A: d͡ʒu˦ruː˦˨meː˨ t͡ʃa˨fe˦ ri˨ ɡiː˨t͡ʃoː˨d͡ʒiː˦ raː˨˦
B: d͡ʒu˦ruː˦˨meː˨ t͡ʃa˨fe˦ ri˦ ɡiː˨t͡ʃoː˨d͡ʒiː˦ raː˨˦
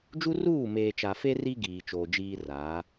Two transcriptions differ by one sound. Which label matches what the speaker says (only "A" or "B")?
B